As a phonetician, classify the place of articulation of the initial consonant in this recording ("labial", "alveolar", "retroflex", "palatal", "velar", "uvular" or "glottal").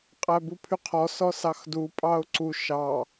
uvular